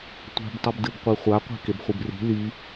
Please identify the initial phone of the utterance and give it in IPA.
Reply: tʷ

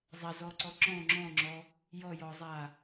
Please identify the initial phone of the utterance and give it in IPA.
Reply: zˤ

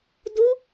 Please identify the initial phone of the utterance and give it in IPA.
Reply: d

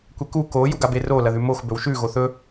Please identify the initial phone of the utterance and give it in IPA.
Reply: kʷ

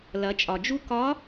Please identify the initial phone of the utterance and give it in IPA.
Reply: l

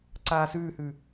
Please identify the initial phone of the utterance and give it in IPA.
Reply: ǀ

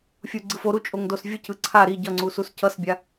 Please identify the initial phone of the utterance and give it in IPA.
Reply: fʲ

